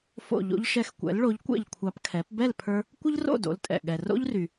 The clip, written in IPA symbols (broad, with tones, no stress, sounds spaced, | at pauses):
f o̰˥˩ ʎ o̰˧ ʎ ʃ ɛ˧ x kʷ ɛ̰˩˥ l ɭ o˩˥ ʎ kʷ ɛ̰˥˩ ʎ kʷʰ ɑ˧ p kʰ ɛ˩˥ p b ɛ˥˩ l pʰ ə˞˧ | kʷ ə˥ ʎ r o̰˥˩ d o̰˩˥ l tʼ ɛ̰˩ ɠ ɛ˩ r o̰˥ ʎ r y˩